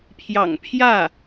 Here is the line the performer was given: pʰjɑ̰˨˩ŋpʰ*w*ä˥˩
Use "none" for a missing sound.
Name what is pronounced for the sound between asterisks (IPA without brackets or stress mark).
j